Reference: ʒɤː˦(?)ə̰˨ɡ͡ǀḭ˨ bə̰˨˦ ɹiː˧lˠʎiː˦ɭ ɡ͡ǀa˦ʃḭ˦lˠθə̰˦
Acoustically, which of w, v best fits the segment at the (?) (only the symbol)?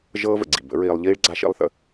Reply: v